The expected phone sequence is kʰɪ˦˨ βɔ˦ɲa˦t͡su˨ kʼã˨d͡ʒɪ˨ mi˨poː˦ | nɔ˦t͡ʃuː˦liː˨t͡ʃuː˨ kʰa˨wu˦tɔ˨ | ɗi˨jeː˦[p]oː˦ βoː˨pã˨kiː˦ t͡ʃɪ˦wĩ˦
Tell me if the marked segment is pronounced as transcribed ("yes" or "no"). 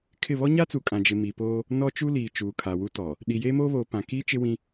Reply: no